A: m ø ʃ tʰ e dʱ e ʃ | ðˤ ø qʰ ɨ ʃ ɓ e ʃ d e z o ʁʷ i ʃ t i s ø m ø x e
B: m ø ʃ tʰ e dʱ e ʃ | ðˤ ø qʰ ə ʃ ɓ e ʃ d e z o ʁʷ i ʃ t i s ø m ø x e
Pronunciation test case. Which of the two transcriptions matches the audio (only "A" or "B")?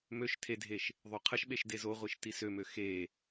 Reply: B